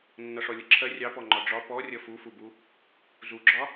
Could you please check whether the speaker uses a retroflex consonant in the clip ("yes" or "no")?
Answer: yes